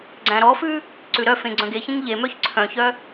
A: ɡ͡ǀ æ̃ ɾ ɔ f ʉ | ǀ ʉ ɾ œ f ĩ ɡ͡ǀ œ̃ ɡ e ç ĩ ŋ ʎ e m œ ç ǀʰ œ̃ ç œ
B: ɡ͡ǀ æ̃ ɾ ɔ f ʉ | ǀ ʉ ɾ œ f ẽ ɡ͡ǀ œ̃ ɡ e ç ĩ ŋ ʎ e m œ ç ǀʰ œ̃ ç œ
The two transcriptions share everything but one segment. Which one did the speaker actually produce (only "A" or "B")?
B